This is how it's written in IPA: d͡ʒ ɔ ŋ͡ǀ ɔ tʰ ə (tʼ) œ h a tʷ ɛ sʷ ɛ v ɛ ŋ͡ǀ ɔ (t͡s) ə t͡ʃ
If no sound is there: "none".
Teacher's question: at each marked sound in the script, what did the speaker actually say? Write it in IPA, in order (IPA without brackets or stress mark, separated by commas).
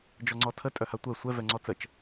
tʼ, t͡s